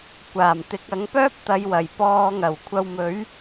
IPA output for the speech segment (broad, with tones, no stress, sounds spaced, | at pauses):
kʷ aː˨˩ m t̪ ɪ˨˥ k̚ ɐ˨˥ ŋ p œː˥ p̚ t̪ ɐ˨˧ j w ɐ˨˩ j p ɔː˧ ŋ ɐ˨˩ w kʷʰ ɐ˧ w m ɵ˨˥ ɥ